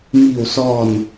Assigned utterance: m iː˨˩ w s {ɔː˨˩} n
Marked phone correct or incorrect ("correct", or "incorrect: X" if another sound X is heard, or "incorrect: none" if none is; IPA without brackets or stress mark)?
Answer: correct